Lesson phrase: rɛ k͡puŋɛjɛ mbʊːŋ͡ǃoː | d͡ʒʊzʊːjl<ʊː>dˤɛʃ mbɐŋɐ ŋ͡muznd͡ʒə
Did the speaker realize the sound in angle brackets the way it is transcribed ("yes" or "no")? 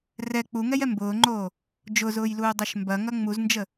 no